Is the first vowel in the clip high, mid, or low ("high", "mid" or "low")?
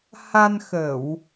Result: low